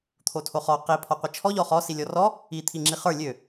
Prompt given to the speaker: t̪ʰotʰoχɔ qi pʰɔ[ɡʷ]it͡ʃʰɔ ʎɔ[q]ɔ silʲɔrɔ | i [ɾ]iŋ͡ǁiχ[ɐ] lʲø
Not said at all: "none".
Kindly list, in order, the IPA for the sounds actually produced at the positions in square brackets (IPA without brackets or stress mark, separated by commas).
qʷ, χ, t̪ʰ, ə˞